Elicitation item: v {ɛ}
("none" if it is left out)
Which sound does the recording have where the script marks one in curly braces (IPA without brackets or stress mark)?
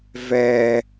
ɛ